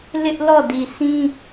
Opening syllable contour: high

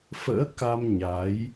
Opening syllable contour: rising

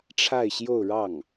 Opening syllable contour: falling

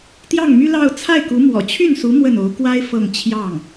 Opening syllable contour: falling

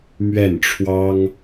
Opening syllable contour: falling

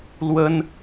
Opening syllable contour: high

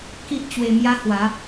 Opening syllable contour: high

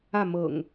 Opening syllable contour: falling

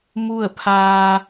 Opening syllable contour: falling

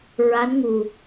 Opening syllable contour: rising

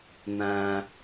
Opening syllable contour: low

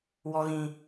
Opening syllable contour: high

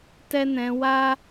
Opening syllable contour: high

